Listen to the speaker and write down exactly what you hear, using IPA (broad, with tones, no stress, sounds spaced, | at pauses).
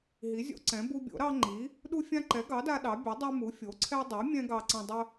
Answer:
ɦ i˩˥ zʲ o̰˦ ǀ ɛ̃˩˥ b u˦ bʲ o̰˩˥ ɾ ɑ˦ ŋ͡ǃ i˩˥ | ɗ u˦ fʲ ã˦ ǃ ɛ˩˥ ɡ ɑ˩˥ d a˦ ɗ ɑ˩˥ bʲ a˩˥ dˤ ɛ˦ m u˩˥ fʲ o˩˥ ǀʰ ɛ˦ dˤ i˩˥ mʲ ɛ̃˦ ɡ ɑ˦ ǀ ɐ̃˦ dˤ ə˦